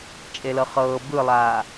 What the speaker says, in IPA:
t͡ʃʼ e l ɤ χ ɤː b ɯ lˠ aː

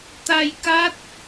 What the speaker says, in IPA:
t̪ a˧ j k a˦˥ t̚

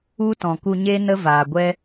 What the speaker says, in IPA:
u˦ t ɔ̃˨ k u˧ ɲ e˦ n ə˦ v aː˨ ɡʷ ɛ˦

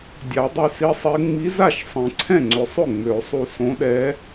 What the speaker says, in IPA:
dʲ a˨˩˦ dˤ y˧ s i˧˥ sˤ e˧˥ ŋ͡m i˧˥ z a˥˩ ʃ sˤ ẽ˨˩˦ ǀʰ ɛ̃˥˩ ŋ͡ǀ ʏ˨˩˦ sˤ ʏ˥˩ ŋ͡m ø˨˩˦ sˤ u˧ s õ˧˥ ɗ ɛ˧˥

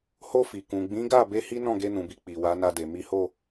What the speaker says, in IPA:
h o˧ f i˨ k ũ˨ ɡ͡b ĩ˨˦ ɡ a˦˨ b e˧ h i˦ n ɔ̃˦˨ ɡ e˧ n ũ˨ b i˨ k͡p i˨ w a˨˦ n a˧ d e˨ m i˨˦ h o˦˨

